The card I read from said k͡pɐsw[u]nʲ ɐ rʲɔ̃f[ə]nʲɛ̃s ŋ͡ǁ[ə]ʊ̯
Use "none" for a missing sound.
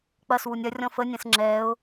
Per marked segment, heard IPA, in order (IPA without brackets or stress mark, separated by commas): u, ə, ɛ